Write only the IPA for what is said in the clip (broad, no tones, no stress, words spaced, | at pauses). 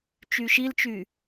t͡ʃyʃilt͡ʃy